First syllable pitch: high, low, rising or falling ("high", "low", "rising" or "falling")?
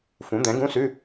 rising